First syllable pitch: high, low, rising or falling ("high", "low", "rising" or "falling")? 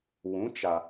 rising